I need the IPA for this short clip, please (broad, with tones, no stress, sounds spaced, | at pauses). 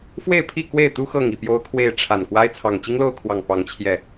f w e˥˨ ɪ̯ pʰ i˥˨ k w e˥˨ ɪ̯ t̪ u˦ x ɤ˥˨ ŋ i˥˨ p j o˦ ʊ̯ kʰ w e˥˨ ɪ̯ ʈ͡ʂʰ a˨˩ n k w a˦ ɪ̯ t͡sʰ ɑ˨˩ ŋ t͡ɕ i˦ ŋ l o˥˨ ʊ̯ kʰ w ɑ˨˩ ŋ p ɑ˨˦ ŋ t͡ɕʰ j ɛ˨˩